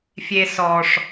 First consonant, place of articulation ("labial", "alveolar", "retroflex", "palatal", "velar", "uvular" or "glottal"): labial